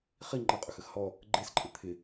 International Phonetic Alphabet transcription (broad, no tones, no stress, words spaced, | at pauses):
χi ŋ͡ǃʌqʼʏxəx hɔ | ɡ͡ǃesǃʼɪ t̪ʰɪ